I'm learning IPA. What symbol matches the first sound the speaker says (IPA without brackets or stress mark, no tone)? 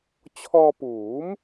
t͡ɕʰ